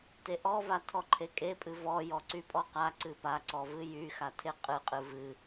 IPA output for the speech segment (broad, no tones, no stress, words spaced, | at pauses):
teʔɔva tʰɔǃʰekʼepʼɨ vɔ jɔǀypʼɔqa ǀɨpaǀɔvɨ jyxatʰe qʼɨqʼɨ vɨ